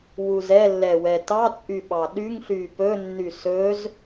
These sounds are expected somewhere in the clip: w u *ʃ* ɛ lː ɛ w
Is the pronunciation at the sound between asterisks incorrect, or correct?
incorrect